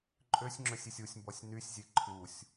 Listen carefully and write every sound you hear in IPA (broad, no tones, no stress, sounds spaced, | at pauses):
ǃʼ ø sʲ ŋ͡ǁ ø sʲ i sʲ u sʲ m b ɔ sʲ n y sʲ zʲ e ǃʰ u sʲ